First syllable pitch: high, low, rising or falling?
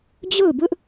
falling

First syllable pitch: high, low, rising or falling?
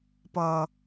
low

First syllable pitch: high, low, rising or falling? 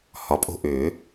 low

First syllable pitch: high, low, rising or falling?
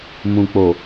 low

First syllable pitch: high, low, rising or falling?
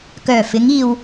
low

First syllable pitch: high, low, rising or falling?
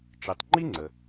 low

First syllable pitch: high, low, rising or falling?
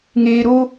low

